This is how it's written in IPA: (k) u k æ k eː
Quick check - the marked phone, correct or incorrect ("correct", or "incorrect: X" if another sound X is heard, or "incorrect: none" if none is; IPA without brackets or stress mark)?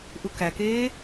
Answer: incorrect: ʔ